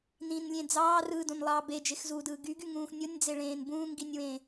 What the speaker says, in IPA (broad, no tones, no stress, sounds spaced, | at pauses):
n ĩ n lʲ ẽ d͡z ɑː r ɯː d õ n lˠ ɑː b e d͡ʒ e x z uː d ɯː ɡ y ɡ y ŋ ũː x nʲ o nʲ d͡z e ɭ ẽː n b ũː ŋ ɡ i nʲ w ẽ